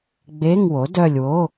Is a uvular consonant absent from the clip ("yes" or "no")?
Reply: yes